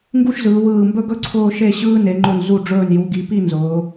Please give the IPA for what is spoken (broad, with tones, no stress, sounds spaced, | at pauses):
ŋ ɡ u˥ ʃ z ɯː˩˧ w ɯː˧˩ m b ɵ˥ ɡ ɵ˥ ǀʰ ʊː˥˧ ʃ e˥˧ ɕ ɯː˥ n e˩˧ ŋ͡ǃ ʊ˧˩ n z u˧˩ ɖ͡ʐ ɵː˧˩ n j u˩˧ ɡ i˩˧ p i˥˧ n z ʊː˩˧